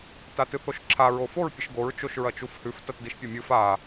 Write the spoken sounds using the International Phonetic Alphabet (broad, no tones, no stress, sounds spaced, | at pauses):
t a t ɨ θ o ʃ ǁʰ a ɹ o f o ɹ pʲ ɨ ʃ ɡ o ɹ t͡ʃ o ʃ ɹ ɐ t͡ʃ u f h ʉ f t ɐ t d i ʃ pʲ ɐ mʲ ɨ f a